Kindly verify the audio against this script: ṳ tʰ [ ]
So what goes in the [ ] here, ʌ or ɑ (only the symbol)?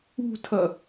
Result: ʌ